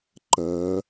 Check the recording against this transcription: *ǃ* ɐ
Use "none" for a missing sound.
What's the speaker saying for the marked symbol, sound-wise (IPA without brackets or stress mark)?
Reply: ǃ